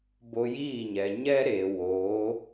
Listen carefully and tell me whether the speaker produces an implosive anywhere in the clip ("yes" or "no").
no